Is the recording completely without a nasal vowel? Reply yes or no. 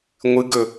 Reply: yes